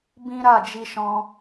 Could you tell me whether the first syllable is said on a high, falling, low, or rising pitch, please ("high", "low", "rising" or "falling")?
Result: high